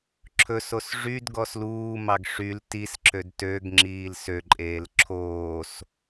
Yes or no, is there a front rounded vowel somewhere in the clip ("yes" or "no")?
yes